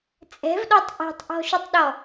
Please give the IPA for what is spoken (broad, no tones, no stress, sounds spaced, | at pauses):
t͡sʼ ɛ̤ v ɗ ɔ tˤ ʔ ɛ̤ tˤ ʔ ɔ̤ ʃ u tˤ ɗ ɔ